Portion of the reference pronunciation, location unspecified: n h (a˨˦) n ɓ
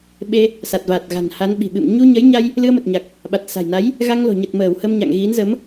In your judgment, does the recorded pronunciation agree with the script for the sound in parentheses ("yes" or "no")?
yes